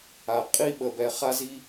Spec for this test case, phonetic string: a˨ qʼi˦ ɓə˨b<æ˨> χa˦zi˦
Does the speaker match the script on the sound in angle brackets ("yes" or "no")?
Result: no